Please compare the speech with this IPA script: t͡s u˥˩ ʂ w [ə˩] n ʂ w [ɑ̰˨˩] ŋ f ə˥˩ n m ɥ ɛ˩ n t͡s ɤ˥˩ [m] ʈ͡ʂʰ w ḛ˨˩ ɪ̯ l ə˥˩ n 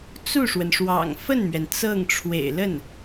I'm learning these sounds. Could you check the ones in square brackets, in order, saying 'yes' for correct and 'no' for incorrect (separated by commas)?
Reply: yes, yes, no